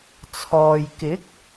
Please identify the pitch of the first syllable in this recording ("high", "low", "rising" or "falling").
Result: low